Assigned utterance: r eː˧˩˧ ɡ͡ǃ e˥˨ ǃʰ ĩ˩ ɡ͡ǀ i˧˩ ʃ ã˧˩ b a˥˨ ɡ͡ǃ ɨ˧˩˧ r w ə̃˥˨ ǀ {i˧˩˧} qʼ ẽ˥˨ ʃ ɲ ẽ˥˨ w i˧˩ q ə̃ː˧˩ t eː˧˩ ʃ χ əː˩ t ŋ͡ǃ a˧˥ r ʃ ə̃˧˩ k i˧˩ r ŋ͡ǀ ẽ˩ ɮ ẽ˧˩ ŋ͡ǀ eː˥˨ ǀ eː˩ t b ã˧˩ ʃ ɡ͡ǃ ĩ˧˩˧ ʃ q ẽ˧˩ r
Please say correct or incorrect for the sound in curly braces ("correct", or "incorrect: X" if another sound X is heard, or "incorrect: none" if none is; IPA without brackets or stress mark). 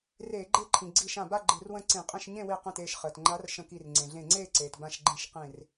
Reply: incorrect: ĩ˧˩˧